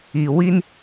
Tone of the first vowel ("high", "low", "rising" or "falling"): low